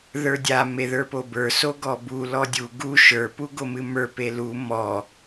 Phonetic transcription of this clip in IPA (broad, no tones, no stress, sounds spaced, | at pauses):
ð ə˞ dʲ a m e ð ə˞ p o b ə˞ s o ɡ ɔ b u l ɔ dʲ u ɡ u ʃ ə˞ p u ɡ o m ɨ m ə˞ p e l u m ɔ